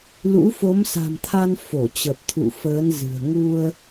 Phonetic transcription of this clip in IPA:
l ṵ˧˥ f o˨˦ m s a̤˨˩ m t̪ʰ a˧ n f o˧˩ t͡ɕ ə˨˩ p̚ t̪ʰ ṵ˧˨ f əː˨˦ n z ɨ̤˨˩ ə̯ ŋ u˧ ə̯

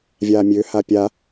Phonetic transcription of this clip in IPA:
vʲ aː mʲ ø h a pʲ a

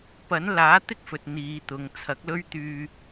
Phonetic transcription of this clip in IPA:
p ɐ˨˥ n l aː˨˥ t̪ ɪ˥ k̚ f ɵ˨ t̚ n̪ iː˨˧ t̪ ʊ˨˧ ŋ t͡sʰ ɐ˨˥ k̚ l ɵ˥ ɥ t̪ yː˧

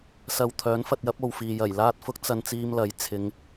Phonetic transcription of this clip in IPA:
s ɐ˧ w t̪ʰ œː˨˥ n f ɐ˧ t̚ j ɐ˨˥ p̚ o˨ w f iː˨ j ɐ˨˩ j l aː˧ t̚ f ʊ˧ k̚ t͡s ɐ˧ n t͡s iː˥ m l ɐ˨˧ j t͡sʰ ɪ˨˧ ŋ

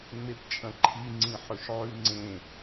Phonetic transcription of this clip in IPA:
ŋ͡m e p t͡ʃʼ ɐ̃ ǃʰ i ŋ͡ǀ ĩ ħ ɵ ʃ ʕ ʉ ŋ͡ǀ ẽ

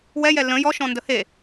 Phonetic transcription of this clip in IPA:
w ɛ j ɛ l ə̃ j ɔ ʃ ɔ̃ n d ə h e

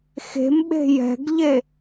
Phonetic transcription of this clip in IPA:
x e̤ m ɓ e̤ j ɛ̤ ɡ ʎ e

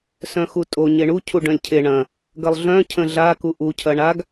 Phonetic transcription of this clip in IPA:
s œ̃ x u tʼ o ɲ e ɳ u cʰ u ɖ œ̃ lʲ cʰ e ɳ ɐ̃ | ɡ ɐ lˠ ɮ œ̃ cʰ ə̃ ɮ a k u ʔ u cʰ ɐ ɳ a ɡ

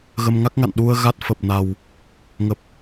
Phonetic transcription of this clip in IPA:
ɣ ə˧ m ŋ a˦˥ k̚ ŋ a̰˧˨ n ɗ u˧ ə̯ ɣ a˦˥ t̚ f ə˨˩ p̚ n a˨˩ w | ŋ ə˨˩ p̚

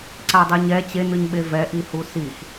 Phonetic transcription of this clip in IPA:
ǀ a dˤ i ɲ ɛ t͡ɕ e n ɯ ɲ ɓ e v ɛ ʔ i h u s i x

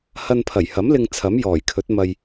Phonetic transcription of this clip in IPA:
h ɐ˧ n pʰ ɐ˨˩ j h ɐ˨˥ m l ɪ˧ ŋ t͡sʰ ɐ˨˥ m j ɔː˨˩ j kʰ ɵ˨˥ t̚ m ɐ˧ j

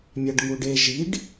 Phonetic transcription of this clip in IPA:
mʲ a ɖ ŋ u ɖ e ʒ i ɖ

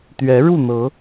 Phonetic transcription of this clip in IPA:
t̪ ɥ ɛ˨˦ ɻ u˥˨ n̪ ɤ˨˦

